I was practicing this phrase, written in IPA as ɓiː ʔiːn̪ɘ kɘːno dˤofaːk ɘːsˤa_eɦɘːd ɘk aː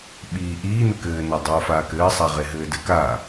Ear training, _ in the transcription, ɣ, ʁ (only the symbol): ʁ